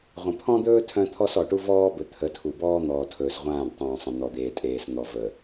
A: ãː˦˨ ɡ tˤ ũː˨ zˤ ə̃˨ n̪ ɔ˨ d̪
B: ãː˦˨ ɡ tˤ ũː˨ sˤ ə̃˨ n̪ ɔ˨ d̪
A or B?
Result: B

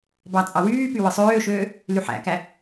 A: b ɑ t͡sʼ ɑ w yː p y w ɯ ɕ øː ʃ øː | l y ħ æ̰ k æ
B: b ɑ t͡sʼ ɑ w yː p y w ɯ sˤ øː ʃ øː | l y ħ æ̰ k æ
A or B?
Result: B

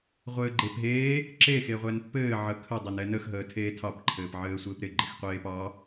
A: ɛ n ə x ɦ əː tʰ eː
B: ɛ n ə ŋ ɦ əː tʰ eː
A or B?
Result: A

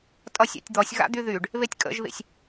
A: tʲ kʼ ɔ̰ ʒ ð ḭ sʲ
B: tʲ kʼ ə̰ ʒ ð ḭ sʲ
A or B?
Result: B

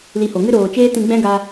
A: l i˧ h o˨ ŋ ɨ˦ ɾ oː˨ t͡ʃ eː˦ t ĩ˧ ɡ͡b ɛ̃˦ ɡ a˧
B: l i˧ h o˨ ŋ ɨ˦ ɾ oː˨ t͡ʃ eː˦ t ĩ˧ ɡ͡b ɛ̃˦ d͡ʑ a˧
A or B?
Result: A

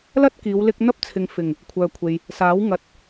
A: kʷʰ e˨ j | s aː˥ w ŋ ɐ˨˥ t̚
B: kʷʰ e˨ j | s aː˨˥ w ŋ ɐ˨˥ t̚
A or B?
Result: B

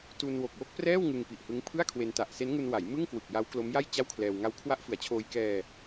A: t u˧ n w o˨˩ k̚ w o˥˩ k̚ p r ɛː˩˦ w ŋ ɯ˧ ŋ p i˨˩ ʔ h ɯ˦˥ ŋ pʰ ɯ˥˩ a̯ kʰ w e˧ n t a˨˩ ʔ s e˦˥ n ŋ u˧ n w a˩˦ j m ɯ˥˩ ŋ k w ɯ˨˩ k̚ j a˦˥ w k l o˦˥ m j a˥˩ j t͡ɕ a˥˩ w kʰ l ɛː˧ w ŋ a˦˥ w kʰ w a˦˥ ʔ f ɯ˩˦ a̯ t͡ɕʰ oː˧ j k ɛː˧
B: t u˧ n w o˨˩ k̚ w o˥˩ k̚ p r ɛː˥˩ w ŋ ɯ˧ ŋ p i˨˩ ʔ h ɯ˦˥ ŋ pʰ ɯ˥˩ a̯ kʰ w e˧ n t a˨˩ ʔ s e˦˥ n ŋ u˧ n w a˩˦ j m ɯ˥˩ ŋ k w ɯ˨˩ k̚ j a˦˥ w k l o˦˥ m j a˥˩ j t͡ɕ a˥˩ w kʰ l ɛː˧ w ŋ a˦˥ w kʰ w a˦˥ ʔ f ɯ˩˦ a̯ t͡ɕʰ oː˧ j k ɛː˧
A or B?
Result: B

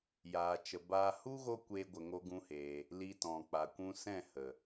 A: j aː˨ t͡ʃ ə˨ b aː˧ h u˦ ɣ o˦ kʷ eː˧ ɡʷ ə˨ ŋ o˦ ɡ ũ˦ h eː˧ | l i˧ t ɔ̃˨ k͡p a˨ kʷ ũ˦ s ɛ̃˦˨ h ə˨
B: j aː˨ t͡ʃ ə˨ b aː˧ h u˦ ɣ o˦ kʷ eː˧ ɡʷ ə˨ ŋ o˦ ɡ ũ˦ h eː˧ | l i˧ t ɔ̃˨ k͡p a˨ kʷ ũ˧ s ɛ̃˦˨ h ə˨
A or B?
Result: B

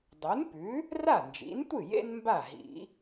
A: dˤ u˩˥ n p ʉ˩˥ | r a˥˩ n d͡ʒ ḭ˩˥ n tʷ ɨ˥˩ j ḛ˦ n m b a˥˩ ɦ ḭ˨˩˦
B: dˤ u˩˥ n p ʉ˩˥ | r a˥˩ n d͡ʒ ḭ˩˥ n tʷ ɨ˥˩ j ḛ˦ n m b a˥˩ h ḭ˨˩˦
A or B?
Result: A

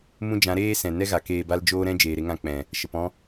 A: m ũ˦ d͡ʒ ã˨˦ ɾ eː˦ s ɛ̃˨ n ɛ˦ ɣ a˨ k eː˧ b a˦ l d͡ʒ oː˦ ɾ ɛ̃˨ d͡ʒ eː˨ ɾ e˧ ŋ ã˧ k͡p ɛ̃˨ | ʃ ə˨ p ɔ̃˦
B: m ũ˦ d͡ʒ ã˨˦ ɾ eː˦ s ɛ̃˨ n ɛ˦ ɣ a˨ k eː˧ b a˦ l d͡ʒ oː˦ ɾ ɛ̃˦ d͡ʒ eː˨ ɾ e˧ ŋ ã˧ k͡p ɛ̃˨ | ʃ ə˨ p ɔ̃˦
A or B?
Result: B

